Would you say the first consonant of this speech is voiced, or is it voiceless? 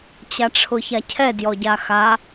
voiceless